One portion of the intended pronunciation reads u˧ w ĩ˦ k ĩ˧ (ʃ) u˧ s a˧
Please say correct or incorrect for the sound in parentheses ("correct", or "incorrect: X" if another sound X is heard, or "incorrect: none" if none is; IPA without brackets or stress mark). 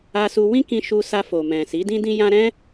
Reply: correct